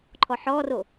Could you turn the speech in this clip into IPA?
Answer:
ǃʰ ɔ ħ ɔ r o

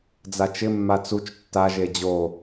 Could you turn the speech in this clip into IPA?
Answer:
d͡z a t͡ʃ ɪ mː a t͡s u t͡ʃ tː a ʒ e d͡ʑ o

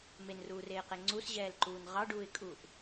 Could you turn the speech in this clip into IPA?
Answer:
m e n r uː r eː q e ŋ͡ǀ u s ʑ ɛː l ǃ uː n ʁ ɑ ɖ uː ɪ̯ kʼ uː ʔ

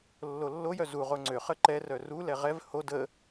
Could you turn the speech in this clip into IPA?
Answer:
lː o lː o j œ z u ʁ o ŋ͡ǀ ø χ ə ǃ ɛ r œ r u l ɛ ʁ ɛ v h o d ə

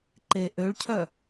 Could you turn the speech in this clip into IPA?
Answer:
ǃ e ʔ ø ɭ cʰ œ

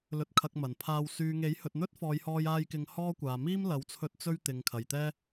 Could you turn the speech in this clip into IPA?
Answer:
l ɵ˨ t̚ kʰ ɐ˨ k̚ m ɐ˨˩ n pʰ aː˧ w s yː˨ ŋ e˨˥ j h ɵ˨ t̚ n̪ ɵ˥ t̚ f ɔː˨˧ j h ɔː˧ j aː˧ j k ɪ˨˧ ŋ h ɔː˥ kʷ aː˨ m iː˥ m l ɐ˨˥ w t͡sʰ ɵ˧ t̚ t͡s ɵ˥ ɥ t̪ ɪ˨ ŋ kʰ ɐ˨ j t̪ ɛː˥

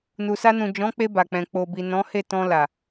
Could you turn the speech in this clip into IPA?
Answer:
n u˨ s a˧ n ũ˨ d͡ʒ ɔ̃˨˦ k͡p e˧ b a˨ k͡p ɛ̃˨ k͡p o˨ b i˨ n ɔ̃˨˦ h e˦˨ t ɔ̃˧ l a˨

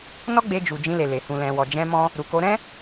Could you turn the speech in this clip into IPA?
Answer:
n ɔ˦ ɡ͡b e˧ d͡ʒ u˨ d͡ʒ ĩ˧ l e˨ l e˨ h ũ˨ l ɛ̃˨ w ɔ˨ d͡ʒ ɛ̃˧ m ɔ̃˦ | ɾ u˨ k o˧ ɾ ɛ̃˦

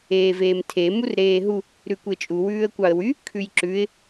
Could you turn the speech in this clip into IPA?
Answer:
eː v eː m tʰ e m u r ɾ eː ɦ u | ɾ ʉ kʷ e t͡ʃʼ u w ʉː ə̯ kʷ ɑ ə̯ w y | kʰ ʉ j ǁ ʉ ɪ̯

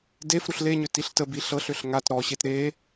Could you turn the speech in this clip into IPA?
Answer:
d e f ɾ u ɬ l e ɲ ʏ t i ɬ t ə b i ɬ ɤ ɬ ʏ ɬ ŋ a t ɾ ɔ ɕ e t ɾ e

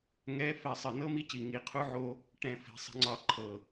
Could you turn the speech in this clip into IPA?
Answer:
ŋ ɛ˨˦ f ɛ˨ sˤ ə˨ n ɤ˦ m i˦ c i˨ ŋ i˨ qʰ u˦ ʕ o˦ | ʈ ɛ̃˦˨ f i̤˨ sˤ ə̤˦ ŋ͡ǀ ɒ˦ ǃʰ ɤ˨

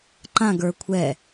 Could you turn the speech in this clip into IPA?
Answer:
ǃ ã ɡ ə˞ kʷʰ ɛ

